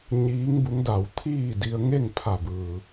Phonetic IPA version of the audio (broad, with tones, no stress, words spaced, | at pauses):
ɲiː˧˥ŋbu˧˥ŋ da˧˩w t̪ʰiː˥˨di˧ə̯ŋe˥˨ŋ pʰa˧˩bɯː˩